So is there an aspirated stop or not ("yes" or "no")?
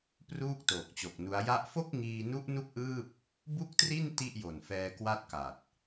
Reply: no